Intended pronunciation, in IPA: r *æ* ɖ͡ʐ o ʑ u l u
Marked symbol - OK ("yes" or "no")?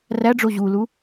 yes